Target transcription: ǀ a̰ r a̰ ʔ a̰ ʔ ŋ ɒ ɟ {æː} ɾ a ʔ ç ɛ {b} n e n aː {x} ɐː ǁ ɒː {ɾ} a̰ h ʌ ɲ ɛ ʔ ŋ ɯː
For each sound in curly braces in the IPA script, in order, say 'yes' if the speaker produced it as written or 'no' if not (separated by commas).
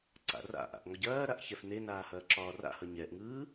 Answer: no, no, no, no